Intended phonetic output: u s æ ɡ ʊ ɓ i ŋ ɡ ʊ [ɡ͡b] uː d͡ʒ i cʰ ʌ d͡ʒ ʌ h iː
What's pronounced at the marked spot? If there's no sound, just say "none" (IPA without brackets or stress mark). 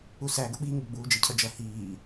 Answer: ɡ͡b